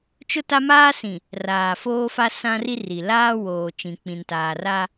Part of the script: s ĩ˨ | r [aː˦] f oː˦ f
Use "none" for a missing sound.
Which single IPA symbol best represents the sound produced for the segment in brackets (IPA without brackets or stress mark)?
aː˨